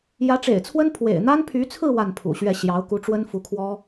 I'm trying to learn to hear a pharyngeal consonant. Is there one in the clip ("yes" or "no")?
no